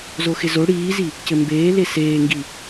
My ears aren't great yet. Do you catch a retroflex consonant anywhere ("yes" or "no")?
yes